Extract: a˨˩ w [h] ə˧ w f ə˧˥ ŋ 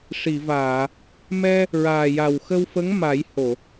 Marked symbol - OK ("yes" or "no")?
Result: no